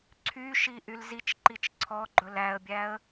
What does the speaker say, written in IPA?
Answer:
ǀʰ y ʃ i ʔ y l z i t͡ʃ ǃ i t͡ʃ ǀʰ ɔ ɡ͡ǃ ɵ l æ ə̯ bʲ æ ə̯

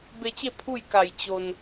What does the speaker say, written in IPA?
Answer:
b e˧ t͡ɕ e˥˨ pʰ u˥˨ j k a˧˩ j t͡ɕ o˧ n

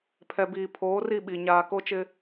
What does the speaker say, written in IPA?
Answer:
pʰ ɛ˨ b iː˨ pʰ oː˨˦ r i˦˨ ɓ i˨ ɲ aː˦ k o˦ t͡ʃ ɪ˦

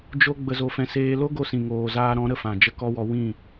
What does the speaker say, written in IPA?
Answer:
d͡ʒ o˦ ɡ͡b ə˧ z o˧ f ɛ̃˧ s eː˧ l o˦ ɡ o˧ s ĩ˨ ŋ oː˨ z aː˧ ɾ ɔ̃˨˦ ɾ ə˧ f ã˨ d͡ʒ ə˦ k ɔ˦ w ɔ˧ w ĩ˦˨

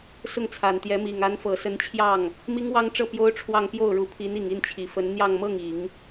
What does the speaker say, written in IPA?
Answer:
s ʊ˥˩ ŋ t͡sʰ a˨˩ n t̪ j ɛ˧˥ m i˨˩ ŋ a˧˥ n f ɤ˨˩ s ə˧˥ n t͡ɕʰ j ɑ˥˩ ŋ | m i˥ ŋ w ɑ˥ ŋ ʈ͡ʂ ɤ˥˩ p j o˥ ʊ̯ ʈ͡ʂʰ w ɑ˥˧ ŋ p j o˥˩ ʊ̯ ɻ u˧˥ pʰ i˧˥ n i˨˩ ŋ i˥˩ n t͡ɕʰ i˨˩ f ə˧˥ n n̪ j ɑ˥˧ ŋ m ɤ˥˩ ŋ i˨˩˦ ŋ

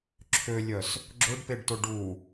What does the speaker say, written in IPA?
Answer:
ǁʰ ø lʲ œ s | ɡ͡ǁ ʊ ɖ p e ɖ t ʊ ɖ u

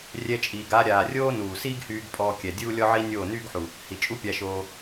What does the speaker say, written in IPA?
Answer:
rʲ ɛ˧ t͡ʃʼ iː˨ ɡ a˧ ɾʲ aː˨ rʲ oː˦ n uː˨ s iː˦ ɡ h yː˧ ɡ pʼ ɔː˧ kʲ ɛ˨ dʲ uː˦ lʲ ɔ˦ ʕ i˦ nʲ oː˦˨ n yː˦ ɡ ħ u˨ | h i˨ t͡ʃʼ u˦ pʲ a˧ ʃ oː˧

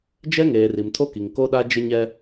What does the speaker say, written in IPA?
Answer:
d͡ʒ ɛ˦ ŋ eː˨ r i˨ m tʰ o˦ k i˨ ŋ k o˦ ɗ a˦ d͡ʒ ɪ˦ ɲ ɛ˦

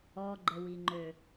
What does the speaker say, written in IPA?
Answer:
ɔ ɡ͡ǃ ə w i ŋ͡ǃ ø

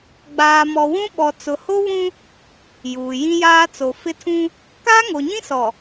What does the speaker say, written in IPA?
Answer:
ɡ͡b aː˨ m ɔ˨ w ũ˦ ɓ ɔ˨ t͡s ʊ˨ h o˦ β ũ˦ | j uː˨ j ĩ˦ j aː˦ t͡s o˨ f ɪ˦ tʰ ũ˦ | k aː˦ ŋ o˨ ɲ ĩ˦ s ɔ˨

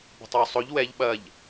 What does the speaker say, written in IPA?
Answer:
b o̤ tˤ w ʊ sˤ o ʎ w ɛ ʎ ɓ ɐ ʎ

